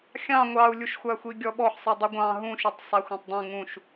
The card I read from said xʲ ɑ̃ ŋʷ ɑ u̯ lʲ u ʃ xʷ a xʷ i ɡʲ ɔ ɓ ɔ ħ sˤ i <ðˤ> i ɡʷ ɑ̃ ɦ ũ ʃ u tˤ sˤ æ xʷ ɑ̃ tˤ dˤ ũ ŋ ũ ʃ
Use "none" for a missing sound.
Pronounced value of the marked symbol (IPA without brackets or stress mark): dˤ